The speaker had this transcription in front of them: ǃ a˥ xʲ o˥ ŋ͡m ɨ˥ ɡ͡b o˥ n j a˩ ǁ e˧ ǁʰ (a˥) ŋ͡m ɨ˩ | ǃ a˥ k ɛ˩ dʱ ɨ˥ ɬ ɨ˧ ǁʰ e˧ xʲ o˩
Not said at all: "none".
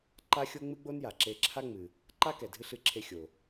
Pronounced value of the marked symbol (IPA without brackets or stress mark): a˥